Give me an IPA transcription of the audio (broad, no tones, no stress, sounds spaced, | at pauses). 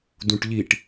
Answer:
d ũ ʈ ʎ i ʈ